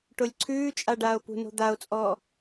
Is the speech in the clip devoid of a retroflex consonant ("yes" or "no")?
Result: no